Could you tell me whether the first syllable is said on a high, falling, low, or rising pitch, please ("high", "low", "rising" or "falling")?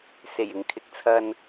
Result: low